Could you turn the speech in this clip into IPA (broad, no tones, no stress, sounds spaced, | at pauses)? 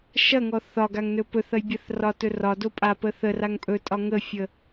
ʃ ɐ ŋ ɔ θ ɒ ɡ a ŋ n ɵ p ɵ θ ɐ j bʲ ɐ θ r ɒ t ɵ r ɒ d o pʼ a p ə θ ə r a ŋ pʼ ɵ tʼ ɒ ŋ ə fʲ ə